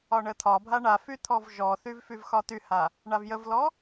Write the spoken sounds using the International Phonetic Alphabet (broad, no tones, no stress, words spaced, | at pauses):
ɒɳət̪ʰɒbʱa ɳafy t̪ʰɔvʒɔθyv fyvxɒt̪yha | ɳavjəvlɔ